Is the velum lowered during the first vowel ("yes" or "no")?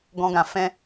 yes